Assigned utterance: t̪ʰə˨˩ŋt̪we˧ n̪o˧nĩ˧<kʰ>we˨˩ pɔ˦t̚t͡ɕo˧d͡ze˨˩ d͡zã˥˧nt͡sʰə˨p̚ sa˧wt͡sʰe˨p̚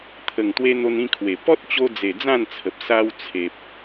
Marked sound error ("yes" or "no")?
no